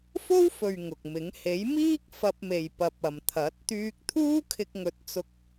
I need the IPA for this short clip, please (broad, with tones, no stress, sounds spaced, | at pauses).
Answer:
f o˥ w f ɵ˨ ɥ ŋ ʊ˨ k̚ m ɪ˨˥ ŋ h e˨˥ j m iː˥ k̚ f ɐ˧ p̚ m e˨ j p ɐ˨ p̚ ɐ˨ m t̪ʰ ɐ˨˥ t̚ t̪ yː˧ k̚ t̪ʰ uː˥ kʰ ɪ˧ k̚ ŋ ɵ˨˥ t̚ t͡s ʊ˧ k̚